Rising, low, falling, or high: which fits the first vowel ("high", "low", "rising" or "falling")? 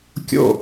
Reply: falling